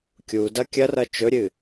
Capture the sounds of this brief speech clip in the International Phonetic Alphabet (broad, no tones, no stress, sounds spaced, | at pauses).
kʲ u d ɐ kʲ ɐ r ɐ t͡ʃ ɵ ɾʲ ɨ